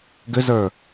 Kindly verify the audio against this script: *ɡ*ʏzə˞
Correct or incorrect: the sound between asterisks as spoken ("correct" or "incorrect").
correct